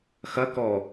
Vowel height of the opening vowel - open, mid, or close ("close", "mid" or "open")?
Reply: open